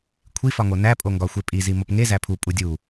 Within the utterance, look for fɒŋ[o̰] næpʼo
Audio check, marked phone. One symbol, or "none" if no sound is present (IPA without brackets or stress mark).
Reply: o